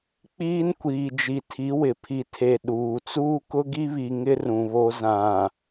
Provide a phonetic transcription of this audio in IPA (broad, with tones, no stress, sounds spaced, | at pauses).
k͡p iː˦ n kʷ iː˨ d͡ʒ i˨ tʰ i˨˦ w ɪ˨ pʰ i˨ tʰ e˨ ɗ uː˨ t͡s uː˦ k ʊ˦ ɡ i˦ β i˨ ŋ ɪ˦ r ũ˨ β o˦ z ã˨